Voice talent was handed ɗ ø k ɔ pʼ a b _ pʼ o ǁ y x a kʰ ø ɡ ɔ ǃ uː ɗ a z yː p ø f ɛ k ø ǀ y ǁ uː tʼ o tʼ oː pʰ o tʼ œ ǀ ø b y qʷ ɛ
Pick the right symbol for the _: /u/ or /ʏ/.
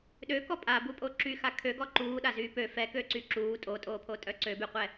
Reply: u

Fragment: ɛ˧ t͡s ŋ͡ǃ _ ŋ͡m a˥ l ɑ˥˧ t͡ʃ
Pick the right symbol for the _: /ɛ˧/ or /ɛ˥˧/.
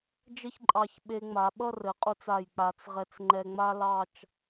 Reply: ɛ˧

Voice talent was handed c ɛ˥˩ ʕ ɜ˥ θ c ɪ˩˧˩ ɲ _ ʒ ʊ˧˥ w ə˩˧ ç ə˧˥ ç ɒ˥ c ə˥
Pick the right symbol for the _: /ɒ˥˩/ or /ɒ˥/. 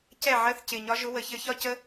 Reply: ɒ˥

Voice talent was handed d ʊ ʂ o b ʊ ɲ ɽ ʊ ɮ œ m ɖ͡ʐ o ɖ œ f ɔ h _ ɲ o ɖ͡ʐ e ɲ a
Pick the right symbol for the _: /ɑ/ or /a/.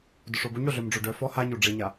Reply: a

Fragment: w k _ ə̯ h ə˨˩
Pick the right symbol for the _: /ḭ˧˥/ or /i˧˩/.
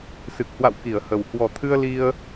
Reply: i˧˩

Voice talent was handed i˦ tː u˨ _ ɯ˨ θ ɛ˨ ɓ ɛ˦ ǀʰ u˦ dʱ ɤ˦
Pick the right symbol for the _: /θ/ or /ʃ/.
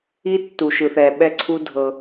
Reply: ʃ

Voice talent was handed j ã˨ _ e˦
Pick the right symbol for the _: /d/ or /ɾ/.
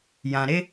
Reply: ɾ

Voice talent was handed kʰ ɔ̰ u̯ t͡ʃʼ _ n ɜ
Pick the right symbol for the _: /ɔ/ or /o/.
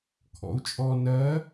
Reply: ɔ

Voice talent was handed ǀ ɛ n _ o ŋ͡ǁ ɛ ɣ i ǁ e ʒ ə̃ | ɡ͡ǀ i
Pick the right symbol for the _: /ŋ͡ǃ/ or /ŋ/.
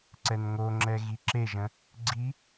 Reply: ŋ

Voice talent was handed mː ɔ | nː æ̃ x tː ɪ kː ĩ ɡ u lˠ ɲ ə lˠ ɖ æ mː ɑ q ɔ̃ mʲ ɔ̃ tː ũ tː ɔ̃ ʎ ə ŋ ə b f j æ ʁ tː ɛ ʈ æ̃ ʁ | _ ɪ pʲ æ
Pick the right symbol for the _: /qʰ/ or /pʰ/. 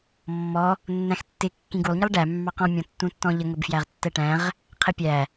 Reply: qʰ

